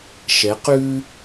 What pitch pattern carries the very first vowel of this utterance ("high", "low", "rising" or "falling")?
rising